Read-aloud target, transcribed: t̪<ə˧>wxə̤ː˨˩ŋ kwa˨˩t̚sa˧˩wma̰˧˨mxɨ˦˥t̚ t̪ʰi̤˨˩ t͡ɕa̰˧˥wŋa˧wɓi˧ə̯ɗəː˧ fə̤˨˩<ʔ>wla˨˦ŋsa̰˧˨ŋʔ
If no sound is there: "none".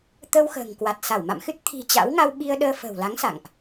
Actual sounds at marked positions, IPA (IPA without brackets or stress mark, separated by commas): ə˧, none